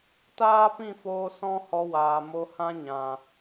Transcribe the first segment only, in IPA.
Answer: t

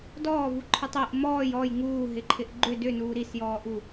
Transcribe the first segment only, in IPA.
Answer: d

